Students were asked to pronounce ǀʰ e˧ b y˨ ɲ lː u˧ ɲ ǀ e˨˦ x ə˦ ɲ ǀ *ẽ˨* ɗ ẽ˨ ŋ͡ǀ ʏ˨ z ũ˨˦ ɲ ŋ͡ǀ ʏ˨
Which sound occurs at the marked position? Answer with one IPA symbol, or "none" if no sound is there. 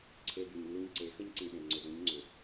ĩ˨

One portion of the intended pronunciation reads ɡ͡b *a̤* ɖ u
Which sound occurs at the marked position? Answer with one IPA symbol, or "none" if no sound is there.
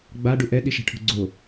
a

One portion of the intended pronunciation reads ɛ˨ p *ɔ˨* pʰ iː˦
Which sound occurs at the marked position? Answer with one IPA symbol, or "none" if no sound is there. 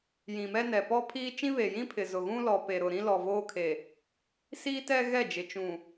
ɔ˦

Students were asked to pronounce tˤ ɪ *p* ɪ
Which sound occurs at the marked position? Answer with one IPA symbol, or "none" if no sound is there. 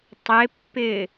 pː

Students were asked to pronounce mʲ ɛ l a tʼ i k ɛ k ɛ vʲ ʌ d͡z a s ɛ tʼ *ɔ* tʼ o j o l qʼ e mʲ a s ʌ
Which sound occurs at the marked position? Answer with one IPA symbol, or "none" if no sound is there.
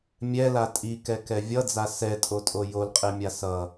o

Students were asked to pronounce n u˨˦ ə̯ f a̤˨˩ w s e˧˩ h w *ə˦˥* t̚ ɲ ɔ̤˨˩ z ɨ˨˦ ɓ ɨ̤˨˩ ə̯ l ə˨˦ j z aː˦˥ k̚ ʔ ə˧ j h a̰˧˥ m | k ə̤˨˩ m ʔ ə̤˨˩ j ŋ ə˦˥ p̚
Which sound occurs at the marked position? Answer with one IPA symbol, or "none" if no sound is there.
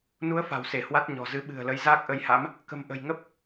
a˦˥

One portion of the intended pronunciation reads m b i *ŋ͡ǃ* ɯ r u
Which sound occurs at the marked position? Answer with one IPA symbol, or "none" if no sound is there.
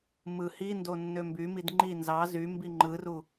ŋ͡ǃ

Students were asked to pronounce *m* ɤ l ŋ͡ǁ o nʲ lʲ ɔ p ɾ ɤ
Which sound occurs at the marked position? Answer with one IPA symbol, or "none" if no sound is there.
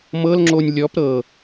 m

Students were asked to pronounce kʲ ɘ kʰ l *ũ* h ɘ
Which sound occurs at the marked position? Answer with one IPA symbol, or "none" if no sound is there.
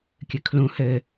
ũ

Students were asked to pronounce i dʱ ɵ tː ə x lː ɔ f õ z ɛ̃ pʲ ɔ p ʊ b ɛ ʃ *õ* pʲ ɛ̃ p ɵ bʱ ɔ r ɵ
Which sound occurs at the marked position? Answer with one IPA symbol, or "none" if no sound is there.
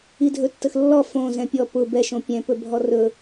õ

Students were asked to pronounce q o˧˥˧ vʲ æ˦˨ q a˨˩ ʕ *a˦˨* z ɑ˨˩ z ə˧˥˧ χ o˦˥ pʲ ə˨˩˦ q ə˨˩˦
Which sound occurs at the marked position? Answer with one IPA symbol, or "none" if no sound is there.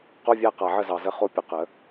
ə˦˨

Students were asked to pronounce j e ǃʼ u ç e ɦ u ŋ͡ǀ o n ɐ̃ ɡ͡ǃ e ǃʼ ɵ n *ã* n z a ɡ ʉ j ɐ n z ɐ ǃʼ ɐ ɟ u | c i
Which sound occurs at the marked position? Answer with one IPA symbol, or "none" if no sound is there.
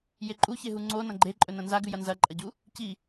ɐ̃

